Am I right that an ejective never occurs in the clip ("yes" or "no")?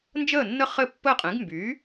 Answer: no